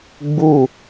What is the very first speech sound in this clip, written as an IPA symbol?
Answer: ɡ͡b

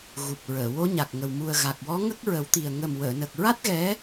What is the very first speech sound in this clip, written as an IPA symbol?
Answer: ɣ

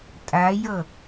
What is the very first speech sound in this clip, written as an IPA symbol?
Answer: tʼ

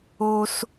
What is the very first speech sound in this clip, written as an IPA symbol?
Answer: o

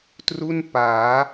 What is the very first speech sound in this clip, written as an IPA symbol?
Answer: t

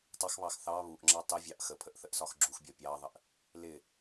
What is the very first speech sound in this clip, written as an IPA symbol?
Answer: tˤ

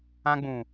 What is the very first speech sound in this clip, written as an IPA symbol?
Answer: ã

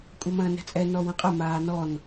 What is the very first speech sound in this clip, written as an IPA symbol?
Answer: kʷʼ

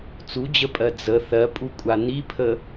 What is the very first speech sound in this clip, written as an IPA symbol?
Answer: t͡s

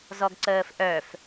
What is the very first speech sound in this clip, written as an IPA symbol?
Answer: z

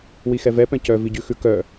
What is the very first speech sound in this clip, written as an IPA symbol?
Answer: w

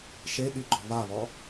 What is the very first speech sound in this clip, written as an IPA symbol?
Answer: ʃ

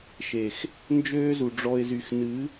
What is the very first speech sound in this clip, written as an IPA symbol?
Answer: ʃ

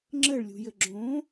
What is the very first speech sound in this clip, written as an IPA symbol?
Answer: ŋ͡ǁ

